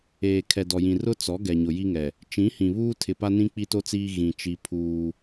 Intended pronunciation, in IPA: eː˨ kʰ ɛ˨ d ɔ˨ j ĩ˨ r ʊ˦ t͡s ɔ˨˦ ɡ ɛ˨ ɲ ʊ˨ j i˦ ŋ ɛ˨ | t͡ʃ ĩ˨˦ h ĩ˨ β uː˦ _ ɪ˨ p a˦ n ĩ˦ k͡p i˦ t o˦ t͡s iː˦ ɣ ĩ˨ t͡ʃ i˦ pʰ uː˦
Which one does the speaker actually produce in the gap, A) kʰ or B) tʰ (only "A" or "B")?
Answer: B